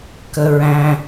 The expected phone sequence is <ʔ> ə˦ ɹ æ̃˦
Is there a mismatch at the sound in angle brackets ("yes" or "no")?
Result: yes